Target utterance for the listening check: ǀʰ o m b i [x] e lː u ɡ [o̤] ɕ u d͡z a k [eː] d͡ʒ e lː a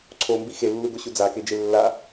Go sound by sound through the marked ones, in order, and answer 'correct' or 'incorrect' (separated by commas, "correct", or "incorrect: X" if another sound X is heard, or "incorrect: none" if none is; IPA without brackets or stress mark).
correct, incorrect: o, incorrect: e